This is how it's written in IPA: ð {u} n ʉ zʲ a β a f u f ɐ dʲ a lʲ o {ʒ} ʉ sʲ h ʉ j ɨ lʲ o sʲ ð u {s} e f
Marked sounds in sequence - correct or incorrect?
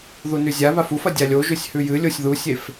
correct, correct, incorrect: sʲ

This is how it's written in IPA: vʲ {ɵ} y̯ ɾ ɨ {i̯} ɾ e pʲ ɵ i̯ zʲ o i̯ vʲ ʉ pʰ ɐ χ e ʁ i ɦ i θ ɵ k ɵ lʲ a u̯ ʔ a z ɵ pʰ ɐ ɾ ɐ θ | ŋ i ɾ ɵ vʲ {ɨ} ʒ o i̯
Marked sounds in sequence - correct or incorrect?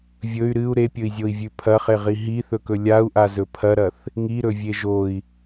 correct, incorrect: u̯, incorrect: e

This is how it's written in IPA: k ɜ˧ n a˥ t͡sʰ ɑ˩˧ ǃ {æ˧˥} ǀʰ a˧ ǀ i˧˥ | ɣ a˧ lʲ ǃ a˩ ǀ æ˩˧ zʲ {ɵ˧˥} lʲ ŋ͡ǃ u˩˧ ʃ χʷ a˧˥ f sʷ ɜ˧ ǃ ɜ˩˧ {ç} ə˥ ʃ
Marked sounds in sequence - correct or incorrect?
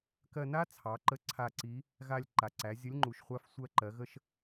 incorrect: ə˧˥, incorrect: ə˧˥, incorrect: ɣ

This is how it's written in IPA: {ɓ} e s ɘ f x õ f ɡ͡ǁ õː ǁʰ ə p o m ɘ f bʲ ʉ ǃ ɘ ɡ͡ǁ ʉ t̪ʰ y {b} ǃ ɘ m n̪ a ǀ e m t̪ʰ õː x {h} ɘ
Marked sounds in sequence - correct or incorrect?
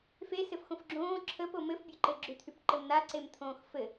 incorrect: f, incorrect: p, incorrect: f

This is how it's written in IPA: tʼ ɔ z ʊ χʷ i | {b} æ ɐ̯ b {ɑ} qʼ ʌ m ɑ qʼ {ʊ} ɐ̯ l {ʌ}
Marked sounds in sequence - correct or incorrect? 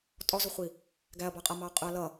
incorrect: ɡ, correct, correct, correct

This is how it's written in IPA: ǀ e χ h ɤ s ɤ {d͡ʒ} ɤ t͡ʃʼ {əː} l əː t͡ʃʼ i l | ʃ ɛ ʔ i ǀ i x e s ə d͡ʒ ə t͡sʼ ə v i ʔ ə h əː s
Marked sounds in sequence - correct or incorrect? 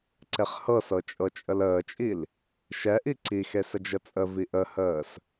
incorrect: t͡ʃʼ, incorrect: ə

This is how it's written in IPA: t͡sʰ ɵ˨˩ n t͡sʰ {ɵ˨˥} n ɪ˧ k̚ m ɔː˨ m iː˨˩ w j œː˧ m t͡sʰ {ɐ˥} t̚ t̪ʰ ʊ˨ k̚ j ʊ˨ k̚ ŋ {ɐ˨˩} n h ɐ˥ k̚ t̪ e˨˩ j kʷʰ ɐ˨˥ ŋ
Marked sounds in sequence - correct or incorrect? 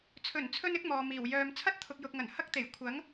incorrect: ɵ˧, correct, correct

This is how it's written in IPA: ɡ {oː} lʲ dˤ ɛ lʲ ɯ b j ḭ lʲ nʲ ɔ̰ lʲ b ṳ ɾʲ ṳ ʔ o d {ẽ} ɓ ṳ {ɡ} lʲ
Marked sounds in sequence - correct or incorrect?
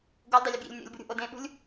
incorrect: o, correct, incorrect: none

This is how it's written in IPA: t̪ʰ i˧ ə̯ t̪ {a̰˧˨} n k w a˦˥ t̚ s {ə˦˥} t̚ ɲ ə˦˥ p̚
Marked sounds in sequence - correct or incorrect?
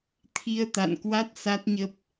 correct, incorrect: a˦˥

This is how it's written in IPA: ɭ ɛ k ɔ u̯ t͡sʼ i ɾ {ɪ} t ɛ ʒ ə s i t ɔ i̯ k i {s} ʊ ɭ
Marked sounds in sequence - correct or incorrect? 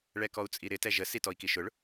correct, incorrect: ʃ

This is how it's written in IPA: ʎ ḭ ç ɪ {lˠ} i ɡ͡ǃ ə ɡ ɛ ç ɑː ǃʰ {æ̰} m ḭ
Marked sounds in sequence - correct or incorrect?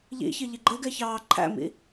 incorrect: ʎ, correct

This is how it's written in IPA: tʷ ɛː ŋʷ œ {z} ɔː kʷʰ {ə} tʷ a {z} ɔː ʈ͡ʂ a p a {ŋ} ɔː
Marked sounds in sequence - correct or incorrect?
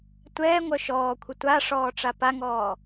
incorrect: ʃ, correct, incorrect: ʂ, correct

